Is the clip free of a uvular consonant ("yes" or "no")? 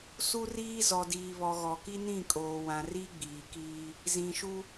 yes